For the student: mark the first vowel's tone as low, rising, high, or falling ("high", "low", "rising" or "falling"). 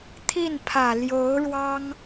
falling